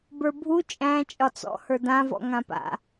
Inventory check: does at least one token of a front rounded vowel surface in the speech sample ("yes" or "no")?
no